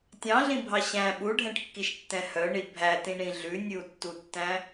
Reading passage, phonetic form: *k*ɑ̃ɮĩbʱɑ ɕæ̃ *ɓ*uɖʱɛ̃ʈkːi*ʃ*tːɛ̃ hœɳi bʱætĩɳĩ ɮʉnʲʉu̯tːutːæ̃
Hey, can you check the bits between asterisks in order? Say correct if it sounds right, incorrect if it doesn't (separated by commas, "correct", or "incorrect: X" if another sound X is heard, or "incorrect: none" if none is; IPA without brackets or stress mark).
incorrect: tʲ, correct, correct